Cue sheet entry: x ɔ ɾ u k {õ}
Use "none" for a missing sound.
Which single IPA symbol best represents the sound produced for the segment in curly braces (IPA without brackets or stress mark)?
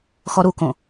õ